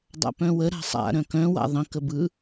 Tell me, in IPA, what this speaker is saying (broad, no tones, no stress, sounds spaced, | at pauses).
dˤ a̰ p œ̃ w ə ɾ a̤ sˤ a̰ ɾ œ̃ k œ̃ w a̰ ðˤ ə̃ k ə b ɯ